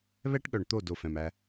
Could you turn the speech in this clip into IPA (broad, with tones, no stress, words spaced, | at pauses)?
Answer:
βɛ˦ʈɠœ˨ɳ t̪o˦˨do˨ fɛ̃˨mæ˦